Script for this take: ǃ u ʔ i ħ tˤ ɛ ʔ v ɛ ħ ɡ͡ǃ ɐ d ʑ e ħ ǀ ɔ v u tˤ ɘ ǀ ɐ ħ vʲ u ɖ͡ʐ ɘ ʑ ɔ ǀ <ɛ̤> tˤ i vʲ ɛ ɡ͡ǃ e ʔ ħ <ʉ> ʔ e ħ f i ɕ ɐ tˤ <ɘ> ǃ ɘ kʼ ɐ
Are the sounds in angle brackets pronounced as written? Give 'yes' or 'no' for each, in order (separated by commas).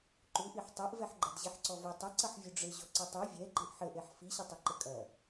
no, no, yes